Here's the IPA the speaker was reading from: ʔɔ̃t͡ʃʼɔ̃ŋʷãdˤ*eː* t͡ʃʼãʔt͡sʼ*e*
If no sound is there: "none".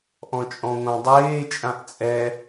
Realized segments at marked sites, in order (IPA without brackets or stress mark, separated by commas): eː, ɛ